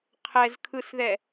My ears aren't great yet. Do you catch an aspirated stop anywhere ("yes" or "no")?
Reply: yes